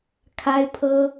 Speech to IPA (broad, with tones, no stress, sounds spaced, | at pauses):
kʰ a˥ ɪ̯ pʰ ɤ˥